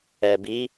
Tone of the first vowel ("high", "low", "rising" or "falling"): low